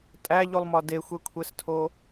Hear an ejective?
yes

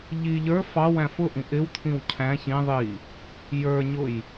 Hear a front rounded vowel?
no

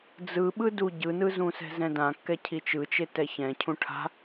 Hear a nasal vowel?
yes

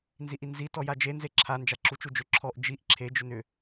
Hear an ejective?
no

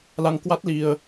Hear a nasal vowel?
no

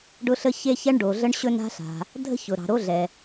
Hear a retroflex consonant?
yes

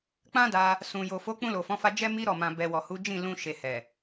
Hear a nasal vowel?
yes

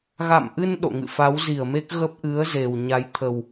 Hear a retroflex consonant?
no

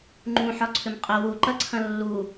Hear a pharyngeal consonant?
yes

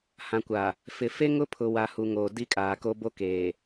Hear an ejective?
yes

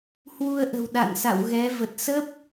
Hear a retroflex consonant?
no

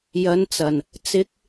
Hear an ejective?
no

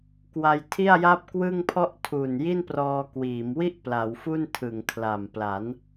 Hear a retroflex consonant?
no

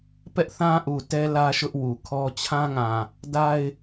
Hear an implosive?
no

